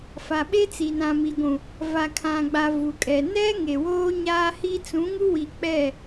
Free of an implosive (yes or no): no